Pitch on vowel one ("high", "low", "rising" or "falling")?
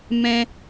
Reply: high